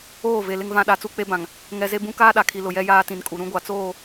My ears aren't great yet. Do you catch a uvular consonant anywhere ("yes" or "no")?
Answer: no